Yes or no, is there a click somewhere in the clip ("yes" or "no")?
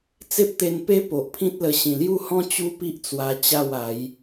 no